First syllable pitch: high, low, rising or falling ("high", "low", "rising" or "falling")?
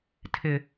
low